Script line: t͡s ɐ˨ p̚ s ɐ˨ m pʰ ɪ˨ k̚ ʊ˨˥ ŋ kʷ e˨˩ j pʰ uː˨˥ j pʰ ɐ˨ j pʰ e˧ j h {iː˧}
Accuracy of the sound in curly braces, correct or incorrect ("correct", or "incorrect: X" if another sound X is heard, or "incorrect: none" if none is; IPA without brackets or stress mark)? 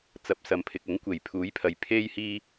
correct